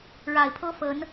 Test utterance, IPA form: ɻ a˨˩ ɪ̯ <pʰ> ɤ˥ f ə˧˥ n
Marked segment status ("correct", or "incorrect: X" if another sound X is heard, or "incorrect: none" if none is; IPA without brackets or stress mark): correct